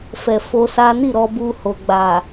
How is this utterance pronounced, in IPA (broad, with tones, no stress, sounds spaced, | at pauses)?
f ɛ˨ f o˧ s a˦ n i˦˨ ɾ ɔ˧ b u˧ h o˨ ɡ͡b a˨